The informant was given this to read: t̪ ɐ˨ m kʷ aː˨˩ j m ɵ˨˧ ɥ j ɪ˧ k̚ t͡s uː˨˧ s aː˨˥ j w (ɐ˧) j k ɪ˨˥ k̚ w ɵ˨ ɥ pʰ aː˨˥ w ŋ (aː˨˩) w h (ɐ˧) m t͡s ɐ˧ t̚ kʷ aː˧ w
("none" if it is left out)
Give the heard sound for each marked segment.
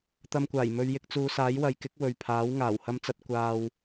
ɐ˨˧, aː˨˩, ɐ˧

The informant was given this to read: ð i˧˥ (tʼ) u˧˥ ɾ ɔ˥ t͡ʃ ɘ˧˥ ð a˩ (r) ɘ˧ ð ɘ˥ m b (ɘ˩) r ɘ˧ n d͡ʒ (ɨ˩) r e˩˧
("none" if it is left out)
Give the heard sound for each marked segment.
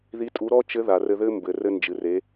tʼ, r, ɘ˩, ɨ˩

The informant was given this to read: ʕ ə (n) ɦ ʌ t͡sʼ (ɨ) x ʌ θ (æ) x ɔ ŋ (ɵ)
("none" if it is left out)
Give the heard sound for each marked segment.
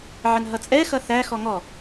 n, ɛ, æ, ɔ

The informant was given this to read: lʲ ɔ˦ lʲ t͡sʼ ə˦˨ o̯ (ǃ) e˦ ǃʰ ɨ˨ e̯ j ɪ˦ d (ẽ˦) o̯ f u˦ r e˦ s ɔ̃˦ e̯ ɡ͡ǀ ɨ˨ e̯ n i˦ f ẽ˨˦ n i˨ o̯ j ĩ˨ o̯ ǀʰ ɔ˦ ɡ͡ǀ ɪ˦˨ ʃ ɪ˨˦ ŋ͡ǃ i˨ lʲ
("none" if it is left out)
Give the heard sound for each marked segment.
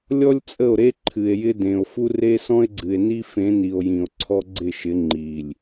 ɾ, ẽ˨

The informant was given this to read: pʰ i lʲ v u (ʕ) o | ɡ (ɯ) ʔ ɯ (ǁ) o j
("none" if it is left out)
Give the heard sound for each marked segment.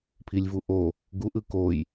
ʔ, u, k

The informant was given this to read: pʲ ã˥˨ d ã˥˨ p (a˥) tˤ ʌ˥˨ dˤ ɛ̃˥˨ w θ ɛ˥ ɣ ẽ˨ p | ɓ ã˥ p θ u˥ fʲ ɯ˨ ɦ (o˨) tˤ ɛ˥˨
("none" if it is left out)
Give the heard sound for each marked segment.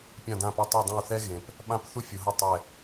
a˥, o˥˨

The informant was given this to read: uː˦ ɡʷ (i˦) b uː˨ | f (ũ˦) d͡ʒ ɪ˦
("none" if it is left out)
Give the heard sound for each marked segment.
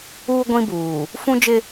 ĩ˦, ũ˦

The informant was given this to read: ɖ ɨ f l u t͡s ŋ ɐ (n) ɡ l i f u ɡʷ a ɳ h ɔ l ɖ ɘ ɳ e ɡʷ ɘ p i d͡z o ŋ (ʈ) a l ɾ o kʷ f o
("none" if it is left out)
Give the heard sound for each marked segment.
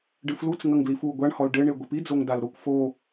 ŋ, d

